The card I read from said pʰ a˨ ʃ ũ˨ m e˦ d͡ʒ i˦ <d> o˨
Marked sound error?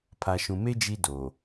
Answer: no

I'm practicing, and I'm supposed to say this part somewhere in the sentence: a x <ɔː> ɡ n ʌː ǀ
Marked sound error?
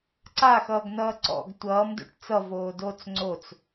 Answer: yes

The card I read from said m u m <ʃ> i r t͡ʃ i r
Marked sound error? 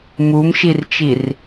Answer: no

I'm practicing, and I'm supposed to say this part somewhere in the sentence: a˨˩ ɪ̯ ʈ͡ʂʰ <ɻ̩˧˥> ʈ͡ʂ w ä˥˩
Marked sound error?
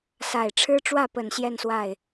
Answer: yes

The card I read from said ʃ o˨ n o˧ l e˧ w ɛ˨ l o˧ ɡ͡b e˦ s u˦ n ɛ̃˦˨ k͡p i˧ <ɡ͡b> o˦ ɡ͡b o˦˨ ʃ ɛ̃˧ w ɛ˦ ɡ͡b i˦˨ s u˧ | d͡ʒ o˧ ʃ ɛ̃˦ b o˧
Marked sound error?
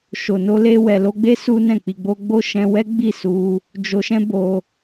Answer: no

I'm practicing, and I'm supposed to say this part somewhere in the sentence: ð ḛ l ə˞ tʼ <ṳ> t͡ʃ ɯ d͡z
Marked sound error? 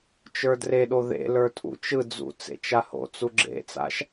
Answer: yes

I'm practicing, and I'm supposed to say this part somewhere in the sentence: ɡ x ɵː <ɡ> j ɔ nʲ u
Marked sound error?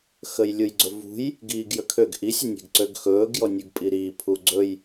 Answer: no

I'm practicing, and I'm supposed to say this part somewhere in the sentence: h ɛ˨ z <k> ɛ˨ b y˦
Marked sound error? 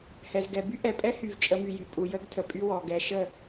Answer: yes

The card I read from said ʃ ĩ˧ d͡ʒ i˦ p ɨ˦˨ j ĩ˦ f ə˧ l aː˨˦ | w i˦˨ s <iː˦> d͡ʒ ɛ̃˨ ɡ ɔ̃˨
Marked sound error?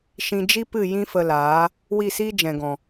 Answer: no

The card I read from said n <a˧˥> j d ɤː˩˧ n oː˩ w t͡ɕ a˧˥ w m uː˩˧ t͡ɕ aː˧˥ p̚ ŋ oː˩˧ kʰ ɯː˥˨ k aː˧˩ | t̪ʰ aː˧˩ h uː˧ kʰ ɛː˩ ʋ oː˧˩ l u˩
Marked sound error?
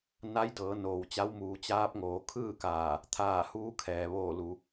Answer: no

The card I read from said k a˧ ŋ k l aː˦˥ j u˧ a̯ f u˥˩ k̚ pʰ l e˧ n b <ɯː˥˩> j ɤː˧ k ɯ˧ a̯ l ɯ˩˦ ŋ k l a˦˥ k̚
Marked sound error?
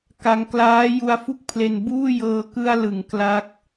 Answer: yes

